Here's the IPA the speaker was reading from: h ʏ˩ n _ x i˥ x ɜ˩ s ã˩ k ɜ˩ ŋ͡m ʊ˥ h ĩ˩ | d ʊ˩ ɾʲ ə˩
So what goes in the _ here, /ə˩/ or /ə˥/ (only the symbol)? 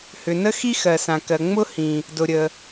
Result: ə˥